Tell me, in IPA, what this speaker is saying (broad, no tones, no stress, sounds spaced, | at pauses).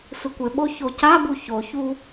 f ɪ kʷ ɪ ɓ o ç o c a b u ç o ç u